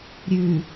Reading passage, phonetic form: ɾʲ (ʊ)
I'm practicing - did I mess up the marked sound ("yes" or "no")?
yes